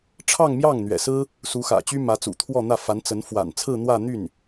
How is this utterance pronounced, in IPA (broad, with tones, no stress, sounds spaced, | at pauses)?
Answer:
ʈ͡ʂʰ ɑ˥˧ ŋ m j ɑ˥˩ ŋ n̪ ɥ ɛ̰˨˩ s ɹ̩˥ | s u˧˥ x ä̰˨˩ t͡ɕ y˥ m ä˧˥ t͡s ṵ˨˩ t̪ʰ w ɔ˥˧ n̪ ä˥˩ f a˧˥ n t͡s ə˧˥ n f w a̰˨˩ n t͡sʰ ɹ̩˥˧ n̪ w ä˥˧ n̪ y˥˩ n